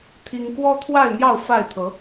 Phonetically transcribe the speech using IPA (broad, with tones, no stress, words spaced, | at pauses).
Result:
t̪ʰi˦ŋ kwɔ˦t̪ʰwa˥˨ɪ̯ n̪jɑ˥˨ʊ̯ fa˥˨ɪ̯t̪ʰɤ˨˦